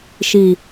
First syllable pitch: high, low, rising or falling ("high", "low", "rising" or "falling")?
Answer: low